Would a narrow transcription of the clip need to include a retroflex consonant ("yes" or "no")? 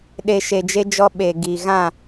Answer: no